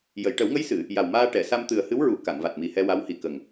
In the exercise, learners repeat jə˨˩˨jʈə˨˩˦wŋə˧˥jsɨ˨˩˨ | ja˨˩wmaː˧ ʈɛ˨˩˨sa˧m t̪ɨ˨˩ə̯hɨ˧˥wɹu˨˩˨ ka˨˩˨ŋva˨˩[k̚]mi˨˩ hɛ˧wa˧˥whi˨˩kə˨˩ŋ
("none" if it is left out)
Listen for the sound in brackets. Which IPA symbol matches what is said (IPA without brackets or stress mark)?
t̚